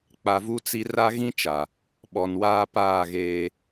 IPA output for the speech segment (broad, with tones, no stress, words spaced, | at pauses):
k͡pa˨vu˦t͡si˦ ra˦ɣĩ˦t͡ʃa˨ | ɓɔ˨nwaː˦paː˦˨ɣeː˦